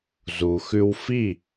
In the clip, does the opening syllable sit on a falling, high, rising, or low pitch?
low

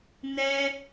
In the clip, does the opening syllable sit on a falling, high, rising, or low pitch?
high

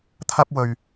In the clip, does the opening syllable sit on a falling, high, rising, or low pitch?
high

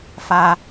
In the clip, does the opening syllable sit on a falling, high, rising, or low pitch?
high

